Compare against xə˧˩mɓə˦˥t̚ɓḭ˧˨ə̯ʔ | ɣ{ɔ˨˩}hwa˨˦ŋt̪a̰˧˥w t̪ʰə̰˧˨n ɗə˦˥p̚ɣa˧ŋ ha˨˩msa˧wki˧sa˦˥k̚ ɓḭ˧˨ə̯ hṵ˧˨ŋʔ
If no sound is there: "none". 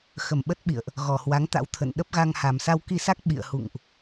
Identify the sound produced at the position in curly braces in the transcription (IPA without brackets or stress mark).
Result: ɔ˨˩